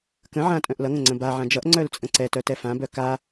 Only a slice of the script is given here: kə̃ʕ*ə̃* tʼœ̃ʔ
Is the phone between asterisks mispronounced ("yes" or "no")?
yes